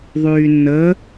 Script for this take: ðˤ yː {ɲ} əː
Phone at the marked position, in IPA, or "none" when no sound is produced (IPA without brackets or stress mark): nː